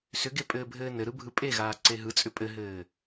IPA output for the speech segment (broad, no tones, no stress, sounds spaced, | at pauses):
s ʏ ɡ e pʼ ɘː bʱ ɘː n ɘ ɾ ɯ bʱ ɯ pʼ e ɣ aː ǀ e ɦ ɯ t͡sʼ ʏ pʼ ɘ ɦ ɘː